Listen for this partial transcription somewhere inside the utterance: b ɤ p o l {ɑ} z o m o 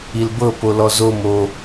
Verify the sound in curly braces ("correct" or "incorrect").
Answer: incorrect